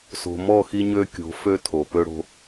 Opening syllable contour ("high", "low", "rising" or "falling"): low